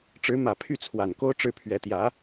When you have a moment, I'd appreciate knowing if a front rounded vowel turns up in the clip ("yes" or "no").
yes